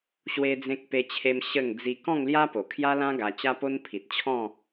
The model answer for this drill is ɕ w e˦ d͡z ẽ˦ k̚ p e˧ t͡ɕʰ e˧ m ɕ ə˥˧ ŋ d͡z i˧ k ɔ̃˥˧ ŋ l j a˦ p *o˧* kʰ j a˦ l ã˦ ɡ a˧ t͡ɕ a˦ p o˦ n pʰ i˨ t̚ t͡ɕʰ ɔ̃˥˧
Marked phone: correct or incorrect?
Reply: incorrect